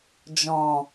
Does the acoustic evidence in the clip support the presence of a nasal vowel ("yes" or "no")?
yes